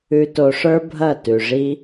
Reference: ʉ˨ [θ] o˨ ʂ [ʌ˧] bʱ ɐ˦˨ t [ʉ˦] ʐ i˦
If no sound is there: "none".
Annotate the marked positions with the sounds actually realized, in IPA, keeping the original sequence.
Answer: t, ə˞˧, ʉ˨

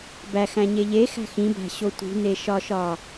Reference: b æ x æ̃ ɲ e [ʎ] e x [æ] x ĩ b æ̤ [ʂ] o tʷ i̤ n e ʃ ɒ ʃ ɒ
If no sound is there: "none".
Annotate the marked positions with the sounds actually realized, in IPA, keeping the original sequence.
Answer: ʎ, æ̤, ɕ

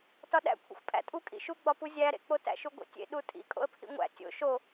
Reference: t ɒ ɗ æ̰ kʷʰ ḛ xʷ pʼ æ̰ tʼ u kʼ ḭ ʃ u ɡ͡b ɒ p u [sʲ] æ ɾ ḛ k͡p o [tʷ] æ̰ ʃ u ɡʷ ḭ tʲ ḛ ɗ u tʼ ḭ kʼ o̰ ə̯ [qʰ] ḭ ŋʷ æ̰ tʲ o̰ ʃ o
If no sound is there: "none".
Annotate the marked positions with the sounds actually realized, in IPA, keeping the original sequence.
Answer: zʲ, t, pʰ

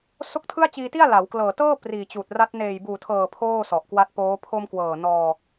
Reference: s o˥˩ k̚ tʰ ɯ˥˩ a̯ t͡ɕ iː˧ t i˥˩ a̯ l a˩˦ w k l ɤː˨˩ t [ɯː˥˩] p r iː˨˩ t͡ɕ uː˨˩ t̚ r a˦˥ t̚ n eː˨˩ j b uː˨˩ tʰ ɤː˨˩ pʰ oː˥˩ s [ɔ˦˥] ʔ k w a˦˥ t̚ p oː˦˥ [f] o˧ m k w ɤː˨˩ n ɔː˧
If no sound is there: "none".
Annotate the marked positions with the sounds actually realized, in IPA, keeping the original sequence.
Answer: ɤː˥˩, ɔ˨˩, pʰ

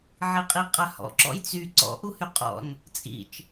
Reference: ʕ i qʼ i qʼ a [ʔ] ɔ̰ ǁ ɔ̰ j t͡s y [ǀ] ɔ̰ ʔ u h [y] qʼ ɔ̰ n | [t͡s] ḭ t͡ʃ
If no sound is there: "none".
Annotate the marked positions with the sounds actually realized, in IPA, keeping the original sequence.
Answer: h, ǀ, y, t͡sʼ

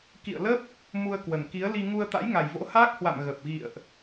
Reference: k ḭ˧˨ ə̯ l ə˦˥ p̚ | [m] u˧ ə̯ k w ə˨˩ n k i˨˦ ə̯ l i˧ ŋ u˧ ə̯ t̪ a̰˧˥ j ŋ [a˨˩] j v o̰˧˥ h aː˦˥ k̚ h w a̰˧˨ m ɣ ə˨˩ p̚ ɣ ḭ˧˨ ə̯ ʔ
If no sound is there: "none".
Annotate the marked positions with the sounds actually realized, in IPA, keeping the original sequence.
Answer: m, a˨˩

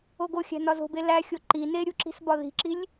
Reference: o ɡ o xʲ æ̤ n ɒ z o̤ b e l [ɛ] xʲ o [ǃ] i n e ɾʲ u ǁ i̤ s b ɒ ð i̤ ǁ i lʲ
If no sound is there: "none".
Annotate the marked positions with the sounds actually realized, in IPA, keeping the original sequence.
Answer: æ, ǃ

